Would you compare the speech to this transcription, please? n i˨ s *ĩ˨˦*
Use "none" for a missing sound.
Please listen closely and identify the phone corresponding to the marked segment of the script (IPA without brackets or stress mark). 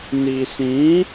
ĩ˨˦